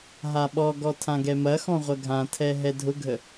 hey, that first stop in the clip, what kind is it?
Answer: implosive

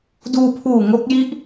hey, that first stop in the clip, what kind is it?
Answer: plain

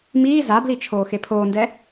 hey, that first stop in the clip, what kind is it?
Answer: plain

